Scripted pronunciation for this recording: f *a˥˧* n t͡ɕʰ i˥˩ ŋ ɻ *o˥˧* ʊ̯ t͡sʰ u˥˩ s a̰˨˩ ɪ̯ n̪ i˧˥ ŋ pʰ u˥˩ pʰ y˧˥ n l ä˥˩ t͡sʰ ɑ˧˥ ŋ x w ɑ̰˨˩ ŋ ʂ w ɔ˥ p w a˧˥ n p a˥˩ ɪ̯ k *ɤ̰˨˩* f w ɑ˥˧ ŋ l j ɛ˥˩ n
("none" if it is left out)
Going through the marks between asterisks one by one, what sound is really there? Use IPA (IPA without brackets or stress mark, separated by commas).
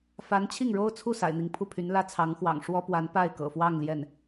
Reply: a˧˥, o˥, ɤ̰˨˩